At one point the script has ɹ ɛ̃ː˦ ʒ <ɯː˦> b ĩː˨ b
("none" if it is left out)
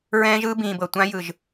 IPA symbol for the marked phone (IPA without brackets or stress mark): ɯː˦